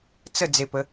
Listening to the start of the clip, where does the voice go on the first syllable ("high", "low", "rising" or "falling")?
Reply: falling